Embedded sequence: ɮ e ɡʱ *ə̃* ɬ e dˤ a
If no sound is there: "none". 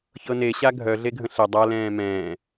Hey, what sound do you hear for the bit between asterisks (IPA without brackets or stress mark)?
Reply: ə̃